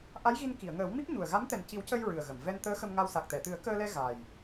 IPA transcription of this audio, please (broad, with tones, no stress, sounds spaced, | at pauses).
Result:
ʔ a˧˥ j ɣ i˧ n k i˨˩˨ ə̯ ŋ əː˨˩˦ w m i˦˥ p̚ ɲ u˨˩ ə̯ ɣ a˧˥ m t̪ ɛ˨˩ n c i˨˩˦ w c ə˧ j ɹ ɨ˨˩ ə̯ ɣ ə˨˩˨ m v ɛ˧ n t̪ əː˧˥ x ə˧ m ŋ a˧ w s a˨˩ k̚ t̪ ɛ˨˩˨ t̪ ɨ˨˩˦ ə̯ k əː˧ l ɛ˧ ɣ a˨˩ j